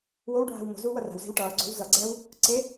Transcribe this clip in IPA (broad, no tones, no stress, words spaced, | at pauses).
wowɖʱa̤w mo̤ zuːwʌra̤wze̤w ʈʌːɡ͡ǀo̤w zʌɡ͡ǀɛːw | ǀe